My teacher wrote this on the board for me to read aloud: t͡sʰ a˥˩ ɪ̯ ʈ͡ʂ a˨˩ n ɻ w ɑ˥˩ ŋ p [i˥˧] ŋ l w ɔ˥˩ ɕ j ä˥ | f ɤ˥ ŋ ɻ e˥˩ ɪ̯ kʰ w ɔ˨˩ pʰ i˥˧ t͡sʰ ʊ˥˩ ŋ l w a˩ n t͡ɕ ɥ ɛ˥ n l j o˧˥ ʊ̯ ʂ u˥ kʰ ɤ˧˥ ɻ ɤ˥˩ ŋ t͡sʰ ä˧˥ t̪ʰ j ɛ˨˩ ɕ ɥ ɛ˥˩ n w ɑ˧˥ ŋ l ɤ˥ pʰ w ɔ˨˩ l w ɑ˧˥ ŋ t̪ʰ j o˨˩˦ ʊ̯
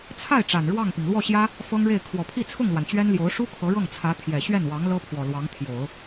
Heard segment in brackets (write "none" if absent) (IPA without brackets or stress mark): i˩